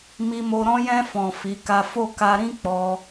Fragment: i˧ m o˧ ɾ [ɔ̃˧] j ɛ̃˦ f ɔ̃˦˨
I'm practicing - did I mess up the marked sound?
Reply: yes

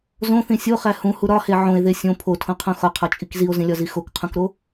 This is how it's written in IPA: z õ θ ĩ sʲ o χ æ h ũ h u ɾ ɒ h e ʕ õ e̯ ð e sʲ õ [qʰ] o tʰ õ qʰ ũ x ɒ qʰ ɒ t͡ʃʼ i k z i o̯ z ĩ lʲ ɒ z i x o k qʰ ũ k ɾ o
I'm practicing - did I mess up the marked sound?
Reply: yes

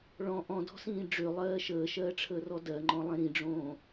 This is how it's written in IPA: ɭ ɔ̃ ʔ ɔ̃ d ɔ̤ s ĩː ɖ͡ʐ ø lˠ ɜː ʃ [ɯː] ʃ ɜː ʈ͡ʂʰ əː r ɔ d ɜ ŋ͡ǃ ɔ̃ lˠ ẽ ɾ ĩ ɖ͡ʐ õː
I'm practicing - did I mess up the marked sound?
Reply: yes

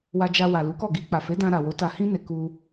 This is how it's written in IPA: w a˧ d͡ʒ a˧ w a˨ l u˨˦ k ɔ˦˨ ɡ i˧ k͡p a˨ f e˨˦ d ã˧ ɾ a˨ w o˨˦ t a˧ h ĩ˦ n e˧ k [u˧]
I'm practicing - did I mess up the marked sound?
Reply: no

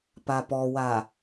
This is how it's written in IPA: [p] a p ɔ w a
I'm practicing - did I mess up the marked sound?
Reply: no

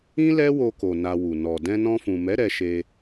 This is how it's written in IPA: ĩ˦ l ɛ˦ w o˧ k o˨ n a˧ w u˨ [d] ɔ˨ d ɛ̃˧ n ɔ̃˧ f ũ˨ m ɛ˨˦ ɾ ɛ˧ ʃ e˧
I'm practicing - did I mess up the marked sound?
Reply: yes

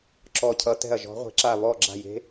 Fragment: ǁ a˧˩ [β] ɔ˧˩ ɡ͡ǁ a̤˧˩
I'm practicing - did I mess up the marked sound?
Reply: no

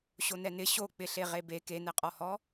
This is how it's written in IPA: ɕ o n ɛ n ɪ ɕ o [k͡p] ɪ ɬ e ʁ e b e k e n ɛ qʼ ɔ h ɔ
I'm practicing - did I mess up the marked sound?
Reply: no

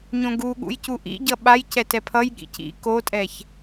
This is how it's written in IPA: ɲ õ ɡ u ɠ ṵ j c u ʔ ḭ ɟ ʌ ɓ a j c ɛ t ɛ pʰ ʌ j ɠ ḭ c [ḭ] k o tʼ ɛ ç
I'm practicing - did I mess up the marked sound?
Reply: no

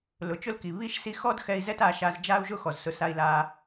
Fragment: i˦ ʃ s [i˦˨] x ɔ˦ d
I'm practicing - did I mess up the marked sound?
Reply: no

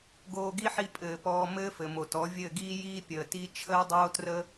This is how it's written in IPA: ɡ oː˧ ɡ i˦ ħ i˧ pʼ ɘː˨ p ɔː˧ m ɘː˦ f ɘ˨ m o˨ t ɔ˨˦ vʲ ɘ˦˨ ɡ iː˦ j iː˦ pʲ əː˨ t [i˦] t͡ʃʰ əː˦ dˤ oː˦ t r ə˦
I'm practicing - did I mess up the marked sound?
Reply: no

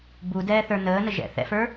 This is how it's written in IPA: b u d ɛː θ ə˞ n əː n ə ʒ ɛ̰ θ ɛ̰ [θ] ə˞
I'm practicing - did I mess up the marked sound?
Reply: yes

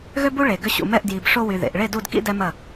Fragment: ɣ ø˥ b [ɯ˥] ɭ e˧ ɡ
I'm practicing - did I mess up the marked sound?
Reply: yes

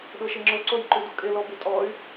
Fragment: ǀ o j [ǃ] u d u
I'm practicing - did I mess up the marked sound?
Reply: no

